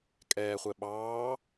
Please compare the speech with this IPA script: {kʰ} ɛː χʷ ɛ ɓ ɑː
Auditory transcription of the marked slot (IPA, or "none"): kʼ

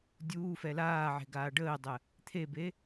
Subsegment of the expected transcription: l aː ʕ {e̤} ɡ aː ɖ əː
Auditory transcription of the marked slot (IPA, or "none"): e̤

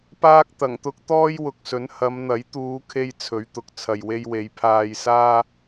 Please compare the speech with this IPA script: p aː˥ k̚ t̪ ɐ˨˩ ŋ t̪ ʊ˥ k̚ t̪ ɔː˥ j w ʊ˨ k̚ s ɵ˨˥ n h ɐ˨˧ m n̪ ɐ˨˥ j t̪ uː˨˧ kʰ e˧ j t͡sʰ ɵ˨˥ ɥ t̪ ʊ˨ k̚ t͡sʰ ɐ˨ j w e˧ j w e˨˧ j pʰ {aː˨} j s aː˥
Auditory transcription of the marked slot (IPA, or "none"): aː˧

